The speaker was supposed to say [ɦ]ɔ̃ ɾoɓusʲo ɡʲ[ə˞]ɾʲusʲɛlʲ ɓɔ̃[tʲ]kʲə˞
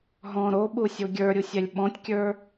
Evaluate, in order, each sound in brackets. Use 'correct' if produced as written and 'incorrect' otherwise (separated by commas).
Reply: correct, correct, correct